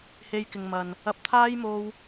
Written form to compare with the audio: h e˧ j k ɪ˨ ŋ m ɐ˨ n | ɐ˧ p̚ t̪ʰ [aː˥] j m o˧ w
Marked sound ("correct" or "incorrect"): correct